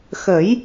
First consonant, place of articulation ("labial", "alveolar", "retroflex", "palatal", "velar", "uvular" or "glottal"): velar